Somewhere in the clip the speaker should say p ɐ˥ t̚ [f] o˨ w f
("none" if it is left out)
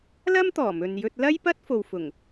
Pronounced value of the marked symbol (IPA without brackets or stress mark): f